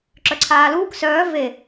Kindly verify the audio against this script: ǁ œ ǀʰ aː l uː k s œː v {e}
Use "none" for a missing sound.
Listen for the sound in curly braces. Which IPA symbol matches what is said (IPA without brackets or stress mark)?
e